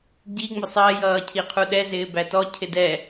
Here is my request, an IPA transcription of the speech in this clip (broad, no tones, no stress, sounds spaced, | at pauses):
ɟ i ŋ͡m ʊ sˤ ɜ j ʌː cʰ i qʰ u ɗ ɛ z ɪː b æ t ɔ cʰ ɪ d ɛ